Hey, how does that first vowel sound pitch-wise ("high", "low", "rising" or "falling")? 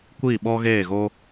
falling